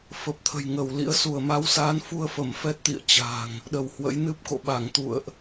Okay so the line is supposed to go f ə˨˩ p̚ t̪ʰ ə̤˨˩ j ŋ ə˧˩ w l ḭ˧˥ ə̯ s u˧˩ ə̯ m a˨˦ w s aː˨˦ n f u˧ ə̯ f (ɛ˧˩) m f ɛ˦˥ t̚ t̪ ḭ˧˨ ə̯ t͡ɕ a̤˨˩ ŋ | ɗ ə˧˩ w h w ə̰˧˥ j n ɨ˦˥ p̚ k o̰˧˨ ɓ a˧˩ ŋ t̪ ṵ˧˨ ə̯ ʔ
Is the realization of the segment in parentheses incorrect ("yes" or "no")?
yes